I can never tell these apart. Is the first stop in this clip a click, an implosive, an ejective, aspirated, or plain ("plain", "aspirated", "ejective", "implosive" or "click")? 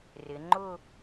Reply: click